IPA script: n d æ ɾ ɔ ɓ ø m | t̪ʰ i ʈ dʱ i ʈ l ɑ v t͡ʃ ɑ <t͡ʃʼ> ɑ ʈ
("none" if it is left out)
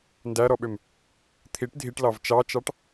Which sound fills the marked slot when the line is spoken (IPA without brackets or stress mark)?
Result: t͡ʃ